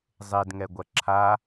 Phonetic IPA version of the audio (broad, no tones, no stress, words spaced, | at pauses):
zˤedŋɛɡʷɐ ǁʰa